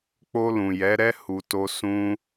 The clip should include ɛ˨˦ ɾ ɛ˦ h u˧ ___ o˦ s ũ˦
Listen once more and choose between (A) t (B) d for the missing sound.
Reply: A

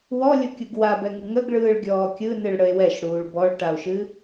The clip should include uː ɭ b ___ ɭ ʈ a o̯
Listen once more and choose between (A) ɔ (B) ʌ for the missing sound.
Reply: A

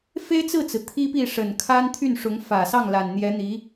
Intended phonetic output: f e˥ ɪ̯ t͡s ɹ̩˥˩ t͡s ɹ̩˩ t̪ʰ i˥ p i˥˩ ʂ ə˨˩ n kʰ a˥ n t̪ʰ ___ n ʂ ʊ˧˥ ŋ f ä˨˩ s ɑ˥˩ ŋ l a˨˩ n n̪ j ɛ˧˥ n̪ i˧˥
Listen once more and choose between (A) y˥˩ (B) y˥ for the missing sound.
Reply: A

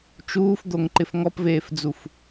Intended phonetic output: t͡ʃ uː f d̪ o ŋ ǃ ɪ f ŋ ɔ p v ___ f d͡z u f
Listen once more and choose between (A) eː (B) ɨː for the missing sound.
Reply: A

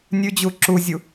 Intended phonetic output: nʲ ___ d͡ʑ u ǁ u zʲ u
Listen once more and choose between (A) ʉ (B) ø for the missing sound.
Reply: A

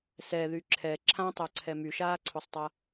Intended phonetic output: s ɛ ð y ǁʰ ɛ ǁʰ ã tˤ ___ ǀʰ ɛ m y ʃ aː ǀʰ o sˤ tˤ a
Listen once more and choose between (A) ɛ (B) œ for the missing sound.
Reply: B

